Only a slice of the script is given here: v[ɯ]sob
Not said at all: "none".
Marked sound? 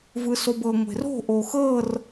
ɯ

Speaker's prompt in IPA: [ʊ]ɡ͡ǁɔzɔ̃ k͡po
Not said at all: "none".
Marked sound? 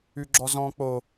ʉ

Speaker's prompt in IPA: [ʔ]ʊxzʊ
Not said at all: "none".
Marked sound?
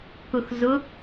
k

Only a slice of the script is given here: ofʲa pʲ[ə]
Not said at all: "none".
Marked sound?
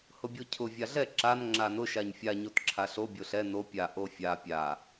a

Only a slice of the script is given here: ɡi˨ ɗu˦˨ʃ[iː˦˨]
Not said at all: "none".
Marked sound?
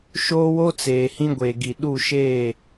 eː˦˨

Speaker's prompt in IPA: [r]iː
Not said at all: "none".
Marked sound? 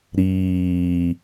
ɾ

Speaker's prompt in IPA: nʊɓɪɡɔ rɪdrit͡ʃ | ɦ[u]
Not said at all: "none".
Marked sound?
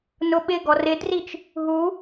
u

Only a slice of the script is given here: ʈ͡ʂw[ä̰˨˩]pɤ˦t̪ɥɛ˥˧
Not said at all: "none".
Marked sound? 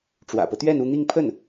ä̰˨˩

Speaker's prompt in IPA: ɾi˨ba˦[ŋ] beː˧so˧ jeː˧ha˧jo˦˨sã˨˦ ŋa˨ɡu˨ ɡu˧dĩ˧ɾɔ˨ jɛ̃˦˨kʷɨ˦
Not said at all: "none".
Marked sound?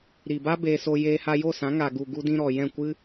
none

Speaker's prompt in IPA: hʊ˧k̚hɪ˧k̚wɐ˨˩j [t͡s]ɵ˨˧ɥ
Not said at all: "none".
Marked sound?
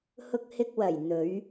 n̪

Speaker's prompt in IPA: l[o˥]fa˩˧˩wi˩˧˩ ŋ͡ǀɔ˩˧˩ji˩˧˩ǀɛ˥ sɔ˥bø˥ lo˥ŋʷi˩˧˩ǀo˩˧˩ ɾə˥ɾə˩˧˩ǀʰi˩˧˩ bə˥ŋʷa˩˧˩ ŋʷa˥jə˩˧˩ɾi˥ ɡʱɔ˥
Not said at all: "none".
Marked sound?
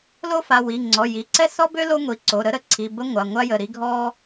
o˥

